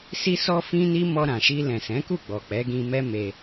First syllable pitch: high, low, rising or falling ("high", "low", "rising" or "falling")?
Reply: high